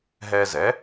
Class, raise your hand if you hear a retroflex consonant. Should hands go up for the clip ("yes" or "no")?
no